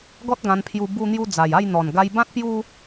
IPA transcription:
ɡ ɔ˦ t̚ ɡ ã˧ n pʰ j u˧ b u˧ n̪ j u˧ d͡z a˨˩ j a˥˧ j n̪ ɔ˨˩ n ɡ a˧ j b ã˦ t̚ p j u˦

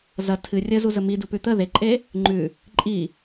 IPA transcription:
z ɐ tʰ ɨ rʲ ə z u z ə m i d u p ʉ t̪ ə ð e ǃʼ e | ŋ͡ǃ ʉ | ǃʼ i

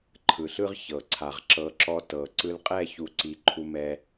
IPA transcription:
ǃʰ ɯ˨ ɬ ɯ˦ ʁ ç ɤ˨ ǀʰ a˨ ʁ ǁ ɤ˨˦ ǁ ɔ˧ t ɤ˨ ǀ ɯ˧ l qʼ ɛ˦˨ ç u˨˦ ǀ i˨˦ ǃʰ u˦ m ɛ˦

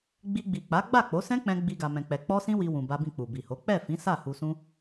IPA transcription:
ɡ͡b i˧ ɡ͡b i˨ k͡p a˨˦ ɡ͡b a˦˨ k͡p o˨˦ s ɛ̃˦ k͡p ɛ̃˧ ɡ͡b i˧ ɡ a˧ m ɛ̃˧ k͡p ɛ˧ k͡p ɔ˦ s ĩ˦ w i˧ w ũ˧ b a˦ b ĩ˦˨ k͡p u˨ b i˨ h o˨˦ k͡p ɛ˦˨ f ĩ˨˦ s a˦˨ h u˧ s ũ˦

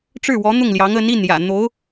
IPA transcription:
ʈ͡ʂ ɻ̩˥˩ w ɔ˧˥ n̪ ʊ˥˩ ŋ l j ɑ˧˥ ŋ ə˧˥ n i˥˩ n j ä̰˨˩ n̪ o˧˥ ʊ̯

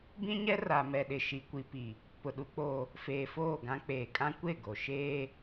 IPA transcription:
b ĩ˦ ɲ ɛ˦ r a˨ m ɛ˨ ɗ ɪ˨ ʃ i˨ kʷ i˨ p i˨ | p ʊ˨ ɗ u˦ k͡p oː˦ | f eː˨ f oː˦˨ ɡ ã˦ k͡p eː˨ kʼ ã˦ kʷ e˦˨ ɡ o˨ ʃ eː˦

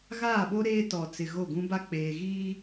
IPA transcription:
ɣ aː˦˨ ɓ o˦ ɾ eː˦ t ɔ˨ t͡s ɪ˨ ɣ o˦˨ ɡ ũ˦ b a˦ k͡p eː˨ ɣ iː˦

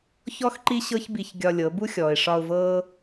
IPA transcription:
ç ɔ˦ x ǃ i˦ ɕ ɤ˦ ç b i˧ ç ɡʲ ɒ˧ lʲ ɤ˨˦ b u˦ xʲ ɔː˨ ɪ̯ ʂ ɒ˧ ʊ̯ v ɤː˦

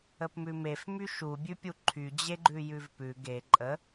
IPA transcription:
ə p m ʉ m e f m y ʃ u bʲ ʉ pʲ u ǃʰ y d͡ʑ e ɡ͡ǃ ʉ j ʉ v p ʉ ɡ e ǃʼ ə

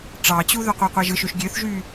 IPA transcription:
ʈ͡ʂ ɑ t͡ɕ u ð ø qʷ æ qʷ æ ʒ ɯ ʃ ø ʃ ɡʲ ø θ ʒ y

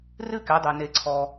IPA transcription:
r ɨ˥ k ɛ˨˦ dˤ ɛ˨ n e˨ ǀʰ ɔ˨

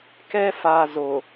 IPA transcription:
k ɛ˦ f a˨ z o˨

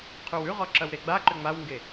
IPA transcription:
qʰ ʉ w ʉ ʁ ɔ ǁ ɐ w ɾ e ɡ͡b a ǃ ʏ ŋ͡m a w ŋ ɡ e

